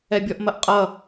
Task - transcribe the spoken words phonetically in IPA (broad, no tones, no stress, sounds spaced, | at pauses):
ɛ bʲ ɔ ʔ m ɐ ʔ qʼ ʌ